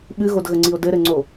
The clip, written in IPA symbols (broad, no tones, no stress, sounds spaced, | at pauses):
ɓ ɨ ɣ o d ɣ ə ŋ͡ǀ i o̯ d ɘ ɾ ɘ ŋ͡ǀ o